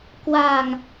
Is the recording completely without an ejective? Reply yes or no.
yes